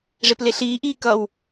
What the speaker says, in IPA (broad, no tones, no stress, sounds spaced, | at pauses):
ʐ e p l e ɬ iː ʔ iː k ʌ w